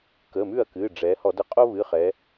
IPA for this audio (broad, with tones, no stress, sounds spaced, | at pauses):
k ə˩˧˩ m ʉ˥˩ ɐ̯ k ɨ˩˧˩ ɖ͡ʐ ɛ˩˧ h ɔ˧˩˧ d ə˧˩˧ qʼ o˥ β ɨ˩˧˩ χ ɛ˩˧